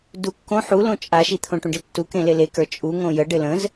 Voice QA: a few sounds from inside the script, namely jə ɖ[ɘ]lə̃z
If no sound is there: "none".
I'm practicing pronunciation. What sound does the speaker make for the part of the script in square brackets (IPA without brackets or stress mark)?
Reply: ɘ